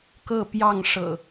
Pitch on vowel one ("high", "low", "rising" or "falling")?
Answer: falling